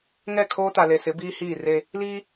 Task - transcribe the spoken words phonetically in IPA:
ŋɛ˦˨kʰoː˦ta˨le˨ sɪ˨˦biː˦ hiː˦˨re˦ | li˦

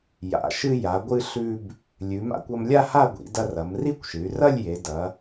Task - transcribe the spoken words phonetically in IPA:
ja̰˩˧ʃɨ˧ ja˩˧ɡʷɨ˧ ɬʉ˧b | lʲʉ˩˧ma̰˧kʷ ɐ˧mlʲa˥˧ ha˥˧ɡʷḭ˩˧ dɐ˧rɐ˩˧mri˥˧kʷʃɨ˩˧y̯ rɐ˥˧lʲje˩˧ dɐ˩˧

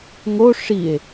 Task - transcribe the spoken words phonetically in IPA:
ŋo ʂie̯

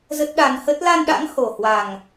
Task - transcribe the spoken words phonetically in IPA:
zə˦˥t̚ɗa˧n hə˦˥t̚ la˧nɗa̰˧˥ŋ ho˨˩hwa˨˩ŋ

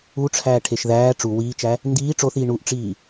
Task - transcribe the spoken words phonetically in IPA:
uʈ͡ʂʰæːʈʰeʃ ðæː ʈ͡ʂu wiːt͡ʃæ | ndiː ʈ͡ʂoθiː ɳuʔʈ͡ʂiː

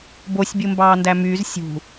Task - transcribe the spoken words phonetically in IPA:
bosʲbʲumbɑː ndæmyːz sʲṳ

